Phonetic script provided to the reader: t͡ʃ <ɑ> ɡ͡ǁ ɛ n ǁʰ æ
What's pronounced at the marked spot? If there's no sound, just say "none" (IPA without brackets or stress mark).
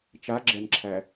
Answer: a